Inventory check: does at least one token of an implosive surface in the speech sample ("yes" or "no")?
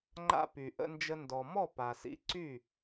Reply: no